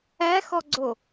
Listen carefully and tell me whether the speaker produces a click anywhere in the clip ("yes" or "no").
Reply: yes